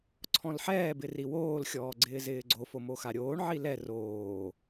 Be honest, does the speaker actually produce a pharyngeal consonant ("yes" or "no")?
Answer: yes